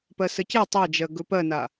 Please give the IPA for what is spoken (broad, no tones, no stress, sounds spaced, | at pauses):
p ɜ s ə c e tˤ ɜ d͡ʒ ɜ ɡ ɵ p ɜ n a